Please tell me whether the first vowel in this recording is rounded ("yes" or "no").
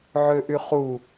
yes